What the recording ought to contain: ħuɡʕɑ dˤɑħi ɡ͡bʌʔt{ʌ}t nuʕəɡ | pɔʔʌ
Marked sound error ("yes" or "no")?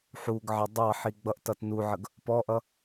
no